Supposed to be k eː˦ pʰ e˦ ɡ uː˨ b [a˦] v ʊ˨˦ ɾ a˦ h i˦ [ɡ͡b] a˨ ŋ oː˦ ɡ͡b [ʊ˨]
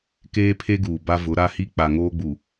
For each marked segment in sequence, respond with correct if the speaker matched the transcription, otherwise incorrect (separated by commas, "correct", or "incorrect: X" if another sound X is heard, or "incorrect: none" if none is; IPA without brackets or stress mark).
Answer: correct, incorrect: k͡p, incorrect: u˨